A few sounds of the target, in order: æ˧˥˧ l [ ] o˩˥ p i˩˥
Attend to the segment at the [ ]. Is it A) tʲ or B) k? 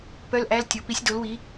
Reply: A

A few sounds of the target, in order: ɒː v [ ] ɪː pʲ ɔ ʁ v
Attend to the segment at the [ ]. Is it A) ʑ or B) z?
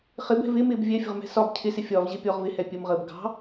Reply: A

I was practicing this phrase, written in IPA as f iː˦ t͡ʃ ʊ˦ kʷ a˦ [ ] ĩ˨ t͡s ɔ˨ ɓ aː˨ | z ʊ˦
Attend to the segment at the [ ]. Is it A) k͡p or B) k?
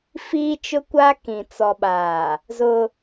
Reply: B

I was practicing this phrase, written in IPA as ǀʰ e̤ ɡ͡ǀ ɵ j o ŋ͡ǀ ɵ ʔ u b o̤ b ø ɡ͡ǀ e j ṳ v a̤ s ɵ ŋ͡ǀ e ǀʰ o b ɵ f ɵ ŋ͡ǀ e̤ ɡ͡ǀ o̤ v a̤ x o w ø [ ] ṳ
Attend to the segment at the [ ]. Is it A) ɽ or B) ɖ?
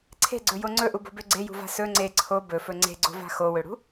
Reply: A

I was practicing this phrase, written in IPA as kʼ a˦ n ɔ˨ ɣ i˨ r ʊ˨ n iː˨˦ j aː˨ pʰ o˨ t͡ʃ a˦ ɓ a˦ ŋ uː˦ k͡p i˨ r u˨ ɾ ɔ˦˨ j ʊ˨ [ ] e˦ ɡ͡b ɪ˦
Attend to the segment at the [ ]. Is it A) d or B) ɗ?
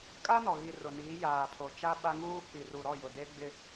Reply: A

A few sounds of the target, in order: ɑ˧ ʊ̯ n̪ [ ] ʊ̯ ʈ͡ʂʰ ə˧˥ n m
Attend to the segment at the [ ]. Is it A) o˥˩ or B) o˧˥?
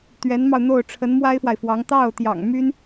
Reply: A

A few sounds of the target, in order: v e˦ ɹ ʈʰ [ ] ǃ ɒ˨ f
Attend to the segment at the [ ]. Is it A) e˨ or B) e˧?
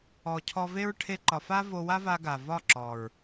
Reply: B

